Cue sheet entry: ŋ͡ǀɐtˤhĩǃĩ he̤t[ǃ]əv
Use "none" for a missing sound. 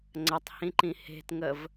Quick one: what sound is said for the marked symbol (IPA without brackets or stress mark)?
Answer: ŋ